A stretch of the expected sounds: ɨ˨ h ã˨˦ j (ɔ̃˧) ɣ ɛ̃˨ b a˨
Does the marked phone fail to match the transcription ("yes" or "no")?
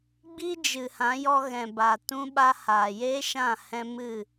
yes